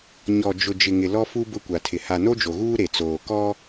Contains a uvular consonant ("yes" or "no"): no